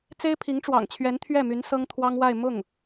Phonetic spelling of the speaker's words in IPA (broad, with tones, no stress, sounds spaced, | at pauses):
t͡s e˥ ɪ̯ pʰ i˧˥ ŋ ʈ͡ʂ w ɑ̰˨˩ ŋ t͡ɕʰ ɥ ɛ˧˥ n t̪ʰ ɥ ɛ˥˩ m y˧˥ n s ɤ˥ ŋ t̪ʰ w ɑ˥ ŋ w a˥˧ ɪ̯ m ʊ˥˩ ŋ